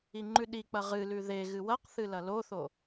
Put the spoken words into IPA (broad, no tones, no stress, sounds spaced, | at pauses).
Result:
i ŋ͡ǃ ʉ ɗ i k͡p ɐ ʁ ɨ l ʉ ð e ɣ ɨ w ɐ q θ ɨ l ɐ l o θ o